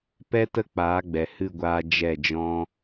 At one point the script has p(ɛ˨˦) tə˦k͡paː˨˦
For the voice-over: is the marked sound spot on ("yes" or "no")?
no